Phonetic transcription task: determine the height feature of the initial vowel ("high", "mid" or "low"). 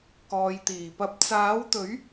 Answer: mid